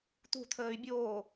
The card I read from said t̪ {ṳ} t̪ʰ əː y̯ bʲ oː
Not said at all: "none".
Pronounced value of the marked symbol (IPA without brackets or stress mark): ṳ